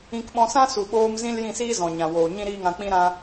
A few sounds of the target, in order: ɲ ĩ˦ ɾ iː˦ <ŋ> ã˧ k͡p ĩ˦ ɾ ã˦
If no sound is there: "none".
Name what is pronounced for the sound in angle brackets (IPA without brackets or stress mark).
ŋ